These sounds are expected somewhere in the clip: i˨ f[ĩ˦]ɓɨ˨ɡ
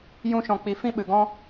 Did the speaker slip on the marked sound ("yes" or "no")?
no